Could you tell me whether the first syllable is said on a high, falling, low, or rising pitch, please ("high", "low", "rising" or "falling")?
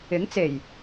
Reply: rising